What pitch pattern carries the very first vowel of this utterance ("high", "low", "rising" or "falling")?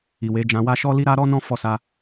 low